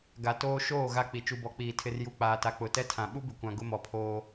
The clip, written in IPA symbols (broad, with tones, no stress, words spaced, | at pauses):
ɡa˨ toː˦ ʃoː˦˨ ɣa˦k͡pi˨ t͡ʃu˨bɔ˨k͡piː˨ tʰɪ˨rju˨k͡paː˨ta˨ k͡pʊ˨˦tɛ˦tʰã˨ ɓu˦bɪ˨kʷã˨ ɡʊ˦mɔ˨pʰoː˦